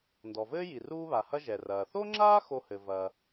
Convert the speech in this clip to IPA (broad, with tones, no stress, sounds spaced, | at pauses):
n d ɔ˩ v ɘː˥ j i˩ r uː˥ β a˩ h ɐ˥ ʒ ɛ˩ r ɐː˩ θ o˥ ŋ͡ǁ aː˥ x o˧ h ɘ˩ v ɐ˩